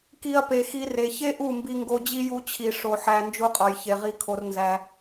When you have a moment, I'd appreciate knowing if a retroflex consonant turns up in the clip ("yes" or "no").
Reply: yes